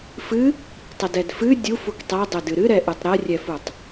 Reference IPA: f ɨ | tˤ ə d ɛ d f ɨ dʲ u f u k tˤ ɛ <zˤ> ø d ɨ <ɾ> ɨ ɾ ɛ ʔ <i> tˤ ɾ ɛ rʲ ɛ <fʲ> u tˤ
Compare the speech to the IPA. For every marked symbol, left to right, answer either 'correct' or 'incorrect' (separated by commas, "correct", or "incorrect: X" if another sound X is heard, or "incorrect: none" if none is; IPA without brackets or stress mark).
incorrect: dˤ, correct, incorrect: ɨ, incorrect: f